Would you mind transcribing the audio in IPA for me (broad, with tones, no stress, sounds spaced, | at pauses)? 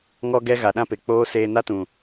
ŋ ɔ˧ ɡ ɛ˧ ɣ a˨ ɗ ã˦ p e˨ k͡p oː˦ s eː˧ n a˦ t ũ˨